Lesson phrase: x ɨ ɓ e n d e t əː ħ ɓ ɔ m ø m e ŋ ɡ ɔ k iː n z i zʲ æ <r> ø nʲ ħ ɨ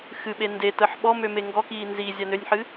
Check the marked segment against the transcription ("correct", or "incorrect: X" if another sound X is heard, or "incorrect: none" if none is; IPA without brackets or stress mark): incorrect: n